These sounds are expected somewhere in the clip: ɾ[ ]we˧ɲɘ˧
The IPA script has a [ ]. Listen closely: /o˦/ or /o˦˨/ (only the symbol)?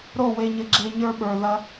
o˦˨